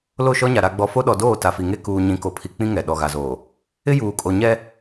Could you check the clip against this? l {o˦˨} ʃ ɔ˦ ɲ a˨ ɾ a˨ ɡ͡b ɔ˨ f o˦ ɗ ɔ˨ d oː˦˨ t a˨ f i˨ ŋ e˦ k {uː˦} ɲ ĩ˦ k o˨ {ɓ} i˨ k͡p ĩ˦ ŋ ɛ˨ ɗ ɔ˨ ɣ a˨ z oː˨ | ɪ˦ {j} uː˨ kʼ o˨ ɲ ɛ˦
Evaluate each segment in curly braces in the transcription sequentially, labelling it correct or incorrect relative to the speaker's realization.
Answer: correct, correct, incorrect: pʰ, correct

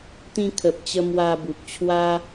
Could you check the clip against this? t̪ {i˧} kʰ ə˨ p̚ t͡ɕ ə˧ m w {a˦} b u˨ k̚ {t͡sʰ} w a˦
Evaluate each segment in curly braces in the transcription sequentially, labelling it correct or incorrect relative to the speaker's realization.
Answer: incorrect: ĩ˧, incorrect: a˧, incorrect: t͡ɕʰ

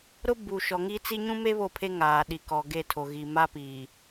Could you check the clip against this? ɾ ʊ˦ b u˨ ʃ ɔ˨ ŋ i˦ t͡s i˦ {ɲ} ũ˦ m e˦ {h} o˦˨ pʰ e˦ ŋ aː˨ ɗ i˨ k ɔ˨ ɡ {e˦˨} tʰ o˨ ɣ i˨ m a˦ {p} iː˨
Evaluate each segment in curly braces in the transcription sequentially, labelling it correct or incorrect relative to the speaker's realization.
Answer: correct, incorrect: β, correct, correct

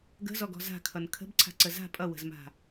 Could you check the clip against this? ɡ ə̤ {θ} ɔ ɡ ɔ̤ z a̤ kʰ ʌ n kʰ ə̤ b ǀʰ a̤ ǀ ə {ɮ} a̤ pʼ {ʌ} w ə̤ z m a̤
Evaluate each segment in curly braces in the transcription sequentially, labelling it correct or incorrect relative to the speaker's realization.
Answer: incorrect: z, incorrect: z, correct

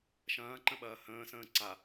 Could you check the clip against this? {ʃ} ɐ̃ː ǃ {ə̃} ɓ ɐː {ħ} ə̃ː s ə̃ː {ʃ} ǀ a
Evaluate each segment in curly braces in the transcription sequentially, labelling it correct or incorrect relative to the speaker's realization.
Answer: correct, correct, incorrect: h, incorrect: none

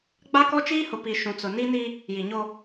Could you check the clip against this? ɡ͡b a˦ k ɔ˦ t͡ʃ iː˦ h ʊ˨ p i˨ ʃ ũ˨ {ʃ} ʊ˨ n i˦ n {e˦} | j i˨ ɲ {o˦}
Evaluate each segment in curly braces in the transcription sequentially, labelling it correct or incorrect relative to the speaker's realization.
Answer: incorrect: t͡s, incorrect: i˦, correct

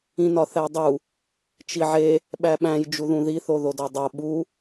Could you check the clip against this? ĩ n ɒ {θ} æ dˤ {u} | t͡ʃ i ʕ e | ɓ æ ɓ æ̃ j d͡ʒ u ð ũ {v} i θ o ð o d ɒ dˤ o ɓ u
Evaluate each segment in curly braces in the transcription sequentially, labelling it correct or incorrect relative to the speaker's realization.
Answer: correct, correct, incorrect: ð

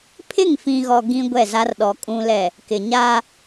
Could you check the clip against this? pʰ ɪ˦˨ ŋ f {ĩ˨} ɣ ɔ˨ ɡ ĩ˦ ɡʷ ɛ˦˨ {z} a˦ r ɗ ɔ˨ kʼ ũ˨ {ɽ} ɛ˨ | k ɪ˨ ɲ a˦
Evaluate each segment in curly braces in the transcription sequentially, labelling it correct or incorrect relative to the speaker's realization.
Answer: correct, correct, incorrect: l

